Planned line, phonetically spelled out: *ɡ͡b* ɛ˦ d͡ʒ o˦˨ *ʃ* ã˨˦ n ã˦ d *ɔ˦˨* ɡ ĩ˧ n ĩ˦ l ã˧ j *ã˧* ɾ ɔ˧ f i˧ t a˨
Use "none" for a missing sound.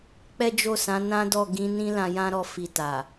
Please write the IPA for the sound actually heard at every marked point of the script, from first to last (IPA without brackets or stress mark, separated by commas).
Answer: k͡p, s, ɔ˦˨, ã˦